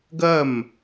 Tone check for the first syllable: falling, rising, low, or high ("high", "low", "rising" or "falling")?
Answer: falling